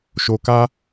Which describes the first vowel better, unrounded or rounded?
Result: rounded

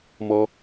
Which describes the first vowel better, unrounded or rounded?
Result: rounded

